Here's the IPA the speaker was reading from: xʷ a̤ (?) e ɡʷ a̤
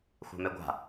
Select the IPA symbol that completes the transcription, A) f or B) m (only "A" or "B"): B